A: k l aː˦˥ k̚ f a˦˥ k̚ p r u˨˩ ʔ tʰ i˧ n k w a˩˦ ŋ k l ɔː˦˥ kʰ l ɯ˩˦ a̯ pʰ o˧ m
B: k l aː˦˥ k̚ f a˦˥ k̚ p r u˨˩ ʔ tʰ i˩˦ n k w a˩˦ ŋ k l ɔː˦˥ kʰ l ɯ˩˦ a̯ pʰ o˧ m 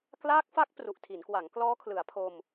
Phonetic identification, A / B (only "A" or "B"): B